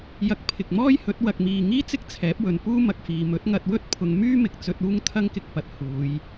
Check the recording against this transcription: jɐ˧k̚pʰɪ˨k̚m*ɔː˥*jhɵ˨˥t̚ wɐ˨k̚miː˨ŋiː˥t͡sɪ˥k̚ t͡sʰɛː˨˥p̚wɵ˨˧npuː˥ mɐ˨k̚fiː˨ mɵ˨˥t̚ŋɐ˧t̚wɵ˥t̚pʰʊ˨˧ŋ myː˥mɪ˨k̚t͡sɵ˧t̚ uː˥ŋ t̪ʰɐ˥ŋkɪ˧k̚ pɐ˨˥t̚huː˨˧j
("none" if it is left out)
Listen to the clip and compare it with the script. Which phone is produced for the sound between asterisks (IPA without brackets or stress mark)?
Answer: ɔː˥